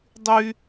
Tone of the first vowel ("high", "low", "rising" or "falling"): high